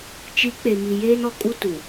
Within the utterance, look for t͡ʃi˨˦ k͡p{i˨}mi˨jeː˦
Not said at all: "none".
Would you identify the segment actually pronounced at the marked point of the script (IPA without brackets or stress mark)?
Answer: e˨